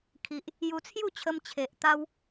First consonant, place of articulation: velar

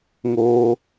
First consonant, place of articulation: velar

